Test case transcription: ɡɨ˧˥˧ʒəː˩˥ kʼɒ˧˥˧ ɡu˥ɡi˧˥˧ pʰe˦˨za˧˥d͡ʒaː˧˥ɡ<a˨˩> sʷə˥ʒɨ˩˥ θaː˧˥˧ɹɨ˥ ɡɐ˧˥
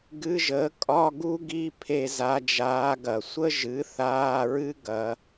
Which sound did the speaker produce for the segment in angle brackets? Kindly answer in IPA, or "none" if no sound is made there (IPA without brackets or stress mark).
ɐ˨˩